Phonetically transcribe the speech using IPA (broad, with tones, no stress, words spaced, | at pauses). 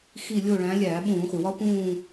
xi˦˨ lʲo˦˨ɭæ̃˨˦ lʲæː˧˩˧ɓũː˧˩˧χʷi˩wɒ˦˥ pũː˦˨